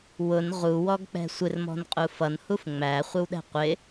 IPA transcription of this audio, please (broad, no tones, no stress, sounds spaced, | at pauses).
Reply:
w ʊ n ʁ u w ɔ ɡ k͡p ɛ̤ sʷ ɪ r m ɔ̤ n qʼ u f ʌ n h u f ŋ͡m æ χʷ ɪ w ɗ ɛ̤ qʷ ɪ